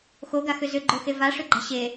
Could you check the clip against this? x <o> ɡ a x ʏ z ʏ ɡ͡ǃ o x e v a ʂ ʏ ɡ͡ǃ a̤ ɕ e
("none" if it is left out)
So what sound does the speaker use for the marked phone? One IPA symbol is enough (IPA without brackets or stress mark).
o